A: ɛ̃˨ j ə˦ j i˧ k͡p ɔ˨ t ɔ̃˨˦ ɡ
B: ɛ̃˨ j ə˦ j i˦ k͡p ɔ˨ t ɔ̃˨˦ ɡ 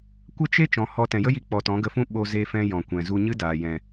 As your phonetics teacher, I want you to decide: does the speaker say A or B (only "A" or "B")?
A